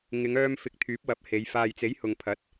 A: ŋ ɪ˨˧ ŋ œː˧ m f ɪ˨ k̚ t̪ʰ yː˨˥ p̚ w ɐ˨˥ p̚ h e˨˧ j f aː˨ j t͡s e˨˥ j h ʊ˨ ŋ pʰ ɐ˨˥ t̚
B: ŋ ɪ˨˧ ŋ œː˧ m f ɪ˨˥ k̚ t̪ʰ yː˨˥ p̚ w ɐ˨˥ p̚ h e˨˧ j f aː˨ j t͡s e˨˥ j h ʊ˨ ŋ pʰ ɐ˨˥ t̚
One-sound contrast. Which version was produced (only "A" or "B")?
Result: B